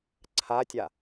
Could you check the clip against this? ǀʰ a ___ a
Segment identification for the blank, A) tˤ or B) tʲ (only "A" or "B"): B